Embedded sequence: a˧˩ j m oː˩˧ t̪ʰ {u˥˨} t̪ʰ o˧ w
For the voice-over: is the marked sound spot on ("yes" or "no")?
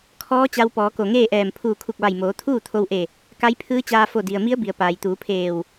no